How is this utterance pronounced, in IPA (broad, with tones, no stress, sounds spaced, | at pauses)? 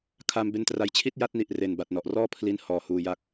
kʰ aː˧ m b e˧ n t r a˩˦ j t͡ɕʰ i˥˩ t̚ j a˦˥ t̚ n i˨˩ ʔ r e˨˩ n b a˨˩ t̚ n ɔ˨˩ ʔ r ɔː˥˩ pʰ l i˥˩ n h ɔː˨˩ h uː˧ j a˦˥ k̚